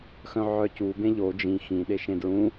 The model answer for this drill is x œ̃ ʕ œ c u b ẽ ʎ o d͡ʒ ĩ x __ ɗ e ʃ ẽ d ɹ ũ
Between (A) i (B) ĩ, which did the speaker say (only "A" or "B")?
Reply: B